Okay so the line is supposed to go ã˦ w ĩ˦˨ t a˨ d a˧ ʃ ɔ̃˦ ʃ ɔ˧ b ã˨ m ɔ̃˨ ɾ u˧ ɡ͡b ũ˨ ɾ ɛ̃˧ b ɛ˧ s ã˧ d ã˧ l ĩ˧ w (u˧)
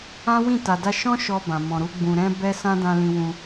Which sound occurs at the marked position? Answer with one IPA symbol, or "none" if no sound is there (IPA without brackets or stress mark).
ũ˧